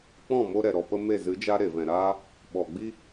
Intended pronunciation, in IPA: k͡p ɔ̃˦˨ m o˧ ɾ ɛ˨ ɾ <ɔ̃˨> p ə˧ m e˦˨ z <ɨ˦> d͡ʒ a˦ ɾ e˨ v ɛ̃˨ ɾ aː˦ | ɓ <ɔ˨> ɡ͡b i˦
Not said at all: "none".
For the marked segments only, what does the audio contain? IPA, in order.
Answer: ɔ˨, ɨ˨˦, ɔ˨

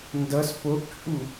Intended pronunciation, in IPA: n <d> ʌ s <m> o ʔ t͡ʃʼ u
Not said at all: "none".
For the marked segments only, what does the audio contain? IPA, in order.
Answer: d, p

